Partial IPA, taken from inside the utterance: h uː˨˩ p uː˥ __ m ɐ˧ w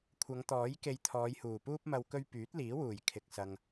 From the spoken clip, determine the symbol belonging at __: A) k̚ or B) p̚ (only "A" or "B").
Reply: B